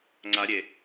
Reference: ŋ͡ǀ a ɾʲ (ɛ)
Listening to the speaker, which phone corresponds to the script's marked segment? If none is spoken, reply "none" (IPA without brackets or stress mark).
e